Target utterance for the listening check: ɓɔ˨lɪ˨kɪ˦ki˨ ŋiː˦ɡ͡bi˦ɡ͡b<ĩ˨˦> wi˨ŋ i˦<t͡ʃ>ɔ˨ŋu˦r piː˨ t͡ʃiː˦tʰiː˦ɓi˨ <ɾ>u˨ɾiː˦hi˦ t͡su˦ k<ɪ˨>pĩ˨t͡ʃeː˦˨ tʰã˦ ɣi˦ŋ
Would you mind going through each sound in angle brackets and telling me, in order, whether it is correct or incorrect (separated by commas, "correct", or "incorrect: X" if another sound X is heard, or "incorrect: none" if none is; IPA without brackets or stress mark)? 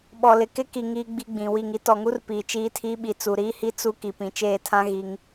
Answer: incorrect: ĩ˨, incorrect: t, incorrect: t͡s, incorrect: i˨